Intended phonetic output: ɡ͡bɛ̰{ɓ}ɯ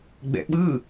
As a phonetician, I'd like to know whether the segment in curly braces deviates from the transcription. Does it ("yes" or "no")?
no